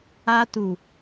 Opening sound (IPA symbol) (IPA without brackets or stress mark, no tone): a